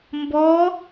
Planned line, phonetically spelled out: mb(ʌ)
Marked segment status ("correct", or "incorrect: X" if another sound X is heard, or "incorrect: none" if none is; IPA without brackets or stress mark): incorrect: ɔ